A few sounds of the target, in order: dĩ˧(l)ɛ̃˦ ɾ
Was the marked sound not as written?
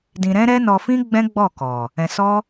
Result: yes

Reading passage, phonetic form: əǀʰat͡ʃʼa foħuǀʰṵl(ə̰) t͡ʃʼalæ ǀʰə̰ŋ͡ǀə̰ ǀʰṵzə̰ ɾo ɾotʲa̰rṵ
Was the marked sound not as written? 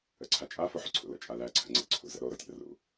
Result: no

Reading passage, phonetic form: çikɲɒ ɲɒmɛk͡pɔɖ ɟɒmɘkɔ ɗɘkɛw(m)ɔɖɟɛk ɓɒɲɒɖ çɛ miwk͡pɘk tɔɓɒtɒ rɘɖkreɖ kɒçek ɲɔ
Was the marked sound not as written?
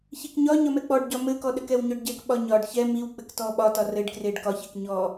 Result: yes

